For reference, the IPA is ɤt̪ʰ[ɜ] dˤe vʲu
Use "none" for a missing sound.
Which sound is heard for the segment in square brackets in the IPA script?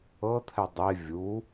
ɛ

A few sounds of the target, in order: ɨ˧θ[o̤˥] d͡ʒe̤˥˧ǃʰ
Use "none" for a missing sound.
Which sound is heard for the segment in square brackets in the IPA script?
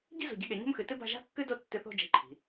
o̤˥˧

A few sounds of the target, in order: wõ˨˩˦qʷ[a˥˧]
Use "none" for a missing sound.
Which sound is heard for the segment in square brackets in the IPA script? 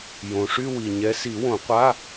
a˧˥˧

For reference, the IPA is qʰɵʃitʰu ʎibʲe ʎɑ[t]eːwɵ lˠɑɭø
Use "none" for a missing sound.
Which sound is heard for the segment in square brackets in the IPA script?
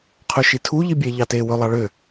t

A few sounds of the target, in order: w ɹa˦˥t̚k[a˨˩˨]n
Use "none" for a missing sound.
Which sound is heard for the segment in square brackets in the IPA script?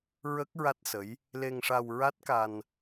a˧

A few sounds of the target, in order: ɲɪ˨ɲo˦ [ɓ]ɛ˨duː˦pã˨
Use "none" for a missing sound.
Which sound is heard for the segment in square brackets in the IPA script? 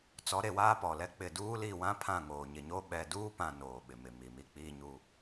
ɓ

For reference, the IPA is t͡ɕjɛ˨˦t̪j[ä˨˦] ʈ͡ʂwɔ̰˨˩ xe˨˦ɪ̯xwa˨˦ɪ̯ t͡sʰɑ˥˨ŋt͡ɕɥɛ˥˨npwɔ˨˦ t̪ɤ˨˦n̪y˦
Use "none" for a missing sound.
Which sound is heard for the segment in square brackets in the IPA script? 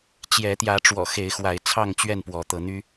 ä˨˦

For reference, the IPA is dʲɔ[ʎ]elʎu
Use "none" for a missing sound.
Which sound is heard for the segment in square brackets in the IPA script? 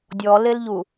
l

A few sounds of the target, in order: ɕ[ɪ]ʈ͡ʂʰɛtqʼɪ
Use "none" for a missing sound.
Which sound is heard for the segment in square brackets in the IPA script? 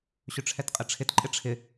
ʏ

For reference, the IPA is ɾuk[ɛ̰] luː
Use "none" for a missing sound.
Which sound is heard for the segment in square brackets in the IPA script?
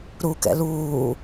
ɛ̰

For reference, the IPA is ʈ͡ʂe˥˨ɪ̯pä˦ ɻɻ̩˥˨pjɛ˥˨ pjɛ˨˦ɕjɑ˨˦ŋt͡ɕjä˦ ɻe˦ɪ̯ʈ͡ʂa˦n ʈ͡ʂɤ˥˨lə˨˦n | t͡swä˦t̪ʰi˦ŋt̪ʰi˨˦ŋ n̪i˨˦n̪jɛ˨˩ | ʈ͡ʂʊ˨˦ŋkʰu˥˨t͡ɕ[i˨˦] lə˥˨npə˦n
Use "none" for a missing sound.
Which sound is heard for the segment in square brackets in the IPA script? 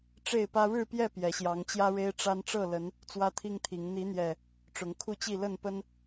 i˥˨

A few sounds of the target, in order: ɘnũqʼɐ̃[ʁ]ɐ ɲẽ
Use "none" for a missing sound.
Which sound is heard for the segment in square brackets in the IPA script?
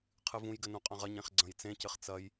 ʁ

